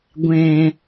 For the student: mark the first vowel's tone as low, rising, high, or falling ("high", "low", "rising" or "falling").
low